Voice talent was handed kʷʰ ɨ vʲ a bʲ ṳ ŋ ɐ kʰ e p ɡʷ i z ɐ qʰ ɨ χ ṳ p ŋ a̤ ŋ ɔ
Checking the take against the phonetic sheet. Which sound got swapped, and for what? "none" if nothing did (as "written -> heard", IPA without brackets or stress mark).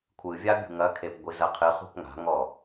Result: none